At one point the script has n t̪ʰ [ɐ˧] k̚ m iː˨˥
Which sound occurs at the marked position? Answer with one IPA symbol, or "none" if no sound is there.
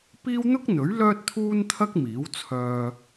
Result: ɐ˥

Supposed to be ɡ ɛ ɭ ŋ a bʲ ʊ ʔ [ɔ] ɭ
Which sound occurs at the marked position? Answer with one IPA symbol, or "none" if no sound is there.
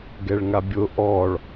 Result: ɔ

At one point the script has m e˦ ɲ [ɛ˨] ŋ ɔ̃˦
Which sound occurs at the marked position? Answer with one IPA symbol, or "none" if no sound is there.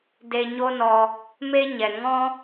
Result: ɛ˨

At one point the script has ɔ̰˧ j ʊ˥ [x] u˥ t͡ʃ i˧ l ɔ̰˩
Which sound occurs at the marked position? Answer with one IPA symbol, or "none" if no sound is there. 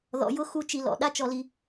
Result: x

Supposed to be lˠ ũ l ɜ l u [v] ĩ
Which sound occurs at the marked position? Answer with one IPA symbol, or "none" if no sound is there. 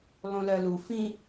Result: f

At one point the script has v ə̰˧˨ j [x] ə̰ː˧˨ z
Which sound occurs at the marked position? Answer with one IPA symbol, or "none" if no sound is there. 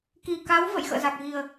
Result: x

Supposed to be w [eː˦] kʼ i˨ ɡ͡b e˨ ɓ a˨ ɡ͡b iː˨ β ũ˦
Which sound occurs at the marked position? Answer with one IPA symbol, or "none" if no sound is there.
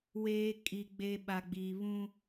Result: eː˦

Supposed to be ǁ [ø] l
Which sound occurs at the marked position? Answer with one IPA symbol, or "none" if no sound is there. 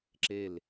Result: e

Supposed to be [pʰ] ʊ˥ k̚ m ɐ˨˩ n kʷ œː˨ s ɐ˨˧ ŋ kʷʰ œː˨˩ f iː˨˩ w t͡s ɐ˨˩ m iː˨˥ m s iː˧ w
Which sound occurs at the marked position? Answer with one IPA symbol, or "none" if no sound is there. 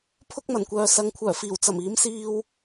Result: pʰ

